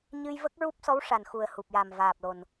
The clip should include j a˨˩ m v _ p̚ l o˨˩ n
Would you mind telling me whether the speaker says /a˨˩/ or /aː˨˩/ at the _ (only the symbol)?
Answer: aː˨˩